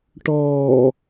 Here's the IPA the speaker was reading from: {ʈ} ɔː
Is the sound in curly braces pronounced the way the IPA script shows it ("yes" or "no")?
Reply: yes